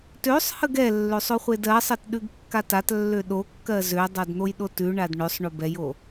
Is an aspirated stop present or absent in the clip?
absent